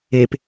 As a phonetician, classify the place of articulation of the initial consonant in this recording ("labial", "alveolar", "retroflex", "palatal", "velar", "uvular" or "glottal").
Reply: labial